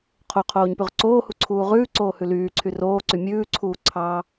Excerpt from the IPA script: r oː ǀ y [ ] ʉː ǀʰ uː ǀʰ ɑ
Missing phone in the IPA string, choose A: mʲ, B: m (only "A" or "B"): A